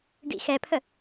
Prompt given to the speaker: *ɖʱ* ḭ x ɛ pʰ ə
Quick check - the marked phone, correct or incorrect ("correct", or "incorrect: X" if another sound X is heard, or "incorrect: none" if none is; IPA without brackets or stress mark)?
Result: incorrect: ɖ